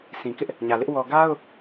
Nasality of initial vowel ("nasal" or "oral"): nasal